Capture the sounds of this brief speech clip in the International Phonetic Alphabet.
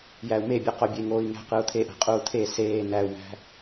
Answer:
j æ u̯ m e bʲ ɯ q o bʲ e ŋ oː i̯ ŋ æ̤ q ɯ u̯ t̪ʰ e ʔ æ̤ qʼ uː t̪ʰ e s eː n æ u̯ m æ̤

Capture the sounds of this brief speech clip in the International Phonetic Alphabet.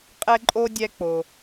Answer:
qʼ ɛ˥ ǃʼ o˥ dʲ ɛ˦ k͡p o˩

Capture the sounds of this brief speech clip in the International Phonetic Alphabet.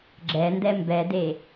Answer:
ɡ͡ǁ ɛ n d ɛ m b ɛ d e

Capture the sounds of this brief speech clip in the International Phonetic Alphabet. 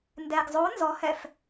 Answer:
n d ɛ ɡ zˤ o n z ɔ h ɛ f

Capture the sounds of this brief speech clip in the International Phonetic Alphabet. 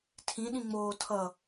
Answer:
tʰ ĩ ɗ ĩ ŋ͡m oː tʰ ʌ

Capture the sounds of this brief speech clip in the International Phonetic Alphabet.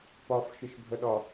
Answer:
p ɒ f ʃ ɪ ʃ bʱ ə ɗ ɒ

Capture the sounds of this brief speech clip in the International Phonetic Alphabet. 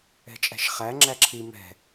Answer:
ɛ̤ t͡ʃʼ æ̤ ʃ χ æ ŋ͡ǁ æ ǁʰ i m ɛ̤

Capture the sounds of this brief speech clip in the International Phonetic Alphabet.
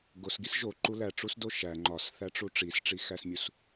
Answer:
ɡ o s ɡ i s ʒ o ǃ u l æ ʈ͡ʂ u s d o ʃ æ ŋ͡ǃ ɒ s θ æ ʈ͡ʂ u ʈ͡ʂ i s ʈ͡ʂ i x æ s mʲ u s

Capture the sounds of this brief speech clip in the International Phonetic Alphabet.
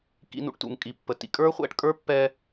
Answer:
k ḭ˧ n ṵ˧ ʈ t ṵ˩ ŋ kʼ i˩ pː ə˩ t ḭ˧ kʼ ə˞˥ χʷ ɛ̰˧ ʈ kʼ ə˞˥ pː ɛ˧

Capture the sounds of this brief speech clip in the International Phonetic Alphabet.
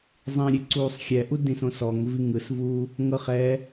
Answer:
zˤ ĩ ɾʲ e ǀ uː sˤ xʲ ɛ ʔ u d ĩ s õ s ɔ ŋ v i ŋ ɯ s v uː | ŋ ɤ χ ɛ

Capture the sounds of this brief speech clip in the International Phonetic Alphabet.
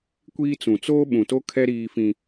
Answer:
kʷ iː˦ t͡s ũ˨ t͡s oː˦ ɓ ũ˨ t o˦ kʰ ɛ˦ ɾ iː˦ f ĩ˦

